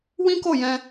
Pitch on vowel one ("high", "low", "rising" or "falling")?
high